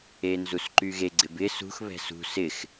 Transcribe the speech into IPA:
e n z u s ǃ y ɣ e ɡ͡ǀ ɪ b ɪ s ṳ x β ɛ̤ s ṳ s ɪ x

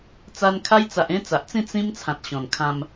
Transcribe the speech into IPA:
t͡s a˧ n kʰ a˦ j t͡s a˨ ʔ ẽ˦ t͡s a˨ ʔ t͡s ĩ˥˧ t͡s ĩ˦ m t͡sʰ ã˨ t̚ ɕ ɔ̃˨˩ n kʰ ã˧ m

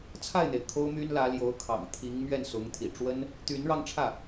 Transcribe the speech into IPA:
t͡sʰ a˥˩ ɪ̯ n̪ e˩ ɪ̯ kʰ o˥ ʊ̯ m y˥ n l ä˧˥ l j o˧˥ ʊ̯ kʰ ɑ̰˨˩ ŋ t̪ʰ i˧˥ ŋ m ɥ ɛ˥˩ n s ʊ˧˥ ŋ t̪ʰ ḭ˨˩ ʈ͡ʂ w ə˥ n | t̪ y˧˥ n ɻ ɑ˧ ŋ ʈ͡ʂʰ ä˥˩

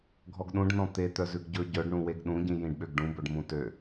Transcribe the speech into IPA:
ɡʱ ɔ ɡ ɗ ũ ɖ n ɔ̃ t̪ e t̪ œ z ʉ ɡ ɟ ɵ ɟ œ ɖ ɳ ũ w e ɡ ɗ ũ ɟ ĩ j ĩ ɖ ɓ ø ɡ ɖ ũ b ɵ ɖ m ũ t ø

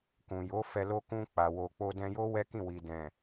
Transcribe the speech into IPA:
k ũ˨ j o˨˦ f ɛ˧ l o˦ k ũ˧ k͡p a˨ w o˨ k͡p o˧ d ɛ̃˧ j o˦ w ɛ˦ k ĩ˦˨ w i˨ d ɛ̃˨

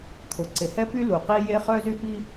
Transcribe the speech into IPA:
t̪ʰ ʊ˩ ǀ ɪ˩ h ɛ˥ p y˥ l u˩ q i˥ j e˥ χ œ˥ z y˥ p i˥

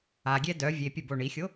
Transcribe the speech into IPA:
a ɡʲ ɛ d œ vʲ e pʲ ə b o ɳ i xʲ o

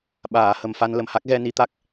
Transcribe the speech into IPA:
ɓ aː˨˩˨ h ə˨˩ m f a˧ n l ə˨˩ m h a˦˥ k̚ ɣ ɛ˧ n i˧ t̪ a˦˥ k̚

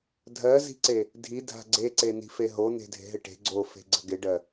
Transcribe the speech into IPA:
dʱ ɜ z i̤ ǀ e | dʱ i dʱ a̤ ɡ͡ǀ e ǀ e n i̤ f e ɦ o n̪ e̤ dʱ e̤ ɦ ɪ ʈ e̤ ɡ͡ǀ o f e̤ ɡ͡ǀ ə̤ ɡ ɪ ɖ ɜ

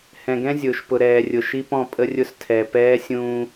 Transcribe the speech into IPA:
h ɛ̃˨ ɡ ɛ̃˦ zʲ ʊː˨ ʃ p ʊ˨ ɾ ɛː˨ rʲ ʊ˨ ʃ i˦ p ɔ̃˦˨ pʼ ə˦ rʲ ʊ˦ s tʰ ɛ˨ p ɛː˦ sʲ ũː˦

